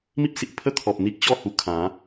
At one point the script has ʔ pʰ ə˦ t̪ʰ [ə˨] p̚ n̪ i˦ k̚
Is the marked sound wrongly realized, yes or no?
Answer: yes